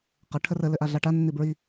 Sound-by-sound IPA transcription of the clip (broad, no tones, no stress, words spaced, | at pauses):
qə ʈʰərə lɘʔaɮaʈa nːibɹi